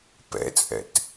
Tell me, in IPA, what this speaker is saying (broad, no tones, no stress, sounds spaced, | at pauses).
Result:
p ɛ̰ t͡sʼ ɛ̰ t